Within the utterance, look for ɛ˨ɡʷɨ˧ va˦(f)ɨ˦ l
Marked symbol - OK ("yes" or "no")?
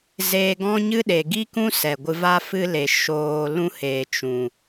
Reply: yes